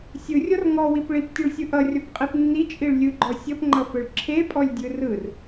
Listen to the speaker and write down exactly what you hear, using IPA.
sʲɯrʲɔr ŋɔwip ɭiptʲʌɭsʲɯ ʔʌrʲɔpqʼep nːit͡ʃʼiɭ lʲɯɡ͡ǃɔ sʲʌpŋ͡ǃʌfɯɭ ǁʰepʼɔlʲdʲɯ rɯr

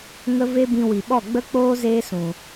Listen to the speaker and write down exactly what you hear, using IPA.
ŋə˦ ve˦bĩ˧ wi˨ɓɔ˦˨ɡ͡bə˦k͡poː˦ zeː˦sũ˨

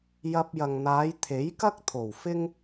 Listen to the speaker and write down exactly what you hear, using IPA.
jɐ˧p̚jɐ˨ŋ n̪aː˨˧jt̪ʰe˨˥jkɐ˥k̚ t̪ʰo˨˩wfɪ˥ŋ

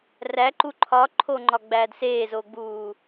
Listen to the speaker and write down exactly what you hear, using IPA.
ræǃu ǃʰɒǃʰoŋ͡ǃɒɡ͡bæːd seːzoɡ͡buː

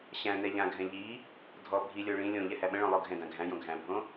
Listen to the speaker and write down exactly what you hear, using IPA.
ɕæ̃ nɛʎãɡʱɛ̃ ʎi | dʱɔ bʱilʲo ɭĩ lʲõ ʎɛhæɓə̃ɭõ lˠoɡʱɛ̃dã ɡʱæ̃jõ ɡʱæ̃bʱõ

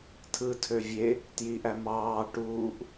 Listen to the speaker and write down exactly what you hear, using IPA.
tʰɯtʰø vʲe | tjiʔæ mɑː ʈuːʔ

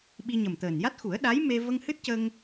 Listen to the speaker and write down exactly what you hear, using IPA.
ɓi˧ ɲə˨˩mt̪əː˨˩nja˦˥t̚xu˨˩˦ə̯ ɗa˧˥jme˧ və˧ŋhɨ˦˥t̚cə˧ŋ

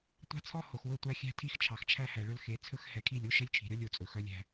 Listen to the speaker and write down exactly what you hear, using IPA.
tʷɑ̤˦t͡sʰɔ˦ ho˨xwɵ˦˨tʷæ˦ xʲæ̤˦tʰi˦x t͡ʃʰɑ˨xt͡ʃʰæ˦hæ˨ɭɵ˦l xe˨˦ t͡sʰɵ˦xhɛ˨kʰi˦˨lʲo˦ ʃɛ˦lʲt͡ʃʰi̤˨ɾʲɔ˦lʲ o˨t͡sʼɵ˨ xœ˦lʲæ̤˦

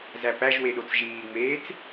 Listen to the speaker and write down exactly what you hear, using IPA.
zæpæʒwe ɗot͡sʒiːŋ͡meːt͡s

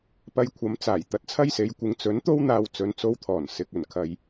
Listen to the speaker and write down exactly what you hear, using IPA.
pɐ˧jkʷʰɐ˨˥mt͡saː˨˩j t̪ɐ˨˥t̚t͡sʰɐ˥jse˨˥jkʷɪ˨˧ŋ t͡sɵ˨˥nt̪o˥w n̪aː˧wt͡sɵ˨˧nt͡so˧wt̪ʰɔː˨˩n sɪ˨k̚ ɵ˨˩n kʰɐ˨j

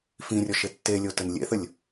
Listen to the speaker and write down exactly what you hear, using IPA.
fĩrʲɔʃ etːelʲo tənlʲḛθəlʲ

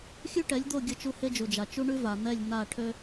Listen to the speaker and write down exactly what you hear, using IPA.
xʲʉ˦ʈɛ˨˦lʲd̪o˦˨ ɡʲə˦t͡ʃu˦ he˦d͡ʒu˨d͡ʒa˨ t͡ʃu˦ɳʉ˦ va˨n̪ɛ˦˨lʲ n̪a˦˨ ʈʰø˦

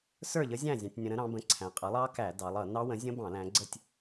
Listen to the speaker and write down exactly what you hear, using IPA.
sə˞˥˨ʎə˦˥zʲæ̃˥˨ zʲɑ̃˧tʲnʲə̃˧ɾə̃˦˥ ɾɑ̃˩˧bə̃˩˥ ǀʰæ̃˩˧qʼʌ˩˥lˠɑ˦˥kæ˧˩˧ dɑ˩˧lˠ ʌ˧˩˧ nɑ˦˥wə̃˩˥ zʲə̃˦˥bɑ̃˧˩˧ læ̃˩˧ɡ͡ǀə˥˨tʲ

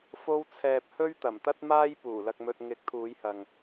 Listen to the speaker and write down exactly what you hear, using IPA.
fo˧wt͡sʰɛː˨p̚ hɵ˥ɥt̪ɐ˨˩m t̪ɐ˥t̚maː˥j puː˨˩lɐ˧k̚mɵ˧t̚ ŋɪ˨˥k̚t̪ʰuː˨˧jhɐ˨ŋ

